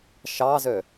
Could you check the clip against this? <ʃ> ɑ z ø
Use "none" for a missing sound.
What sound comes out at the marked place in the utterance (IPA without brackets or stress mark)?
ʃ